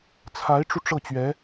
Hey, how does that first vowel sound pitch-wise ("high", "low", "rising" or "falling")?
rising